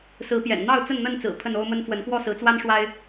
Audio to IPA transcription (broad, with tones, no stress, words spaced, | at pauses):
sɹ̩˨˦pjɛ̰˨˩n n̪ɑ˥˨ʊ̯ t͡sə˥˨nn̪ə˥˨nt͡sɹ̩˨˩ pʰə˥˨no˦ʊ̯mə˦n fwə˨˦nkwɔ˥˨sɹ̩˨˦t͡swa˦n ʂwa˦ɪ̯